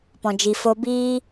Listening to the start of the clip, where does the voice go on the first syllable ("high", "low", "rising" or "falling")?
low